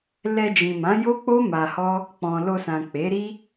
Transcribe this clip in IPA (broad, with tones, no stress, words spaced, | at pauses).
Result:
lɛ˧d͡ʒĩ˨mã˨˦ jo˦k͡po˦ ma˧hɔ˦ | k͡pɔ̃˨lo˧sã˨ k͡pe˨˦ɾi˦